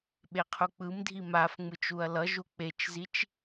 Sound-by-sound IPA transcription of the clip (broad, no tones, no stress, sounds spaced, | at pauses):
ɓ e qʰ u k͡p ɯ m dʱ i m a f ŋ͡m ɯ t͡ʃ u ɐ̯ l ʌ ʒ u k͡p e t͡ʃ z i t͡ʃ